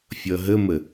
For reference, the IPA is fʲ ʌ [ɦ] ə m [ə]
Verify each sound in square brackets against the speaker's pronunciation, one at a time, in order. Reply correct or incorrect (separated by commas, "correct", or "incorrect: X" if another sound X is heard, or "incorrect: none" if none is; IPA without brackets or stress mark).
correct, correct